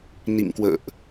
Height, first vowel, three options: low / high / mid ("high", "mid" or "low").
high